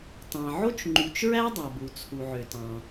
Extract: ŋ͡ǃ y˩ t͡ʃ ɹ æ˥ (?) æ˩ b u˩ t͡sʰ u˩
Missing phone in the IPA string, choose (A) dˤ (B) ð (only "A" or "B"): A